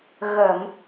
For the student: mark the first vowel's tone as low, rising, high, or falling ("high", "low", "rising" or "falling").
low